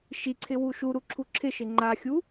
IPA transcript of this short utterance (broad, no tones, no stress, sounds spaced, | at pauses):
ʃ i ǀʰ ɪ w u ʃ u ɾ u ǁʰ u ǁʰ ɪ ʃ ɪ ŋ͡ǃ a xʲ u